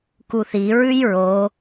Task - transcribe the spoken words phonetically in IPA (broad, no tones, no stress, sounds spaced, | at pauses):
k u θ i ɹ ʉ j ɹ o